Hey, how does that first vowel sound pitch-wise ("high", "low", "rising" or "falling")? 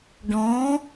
rising